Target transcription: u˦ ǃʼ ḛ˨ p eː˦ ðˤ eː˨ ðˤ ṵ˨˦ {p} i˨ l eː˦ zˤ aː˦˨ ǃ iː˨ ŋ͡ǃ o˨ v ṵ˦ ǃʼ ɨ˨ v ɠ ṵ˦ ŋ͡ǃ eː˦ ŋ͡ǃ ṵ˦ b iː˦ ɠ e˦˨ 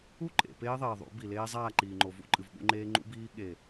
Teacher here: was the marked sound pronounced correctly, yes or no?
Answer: no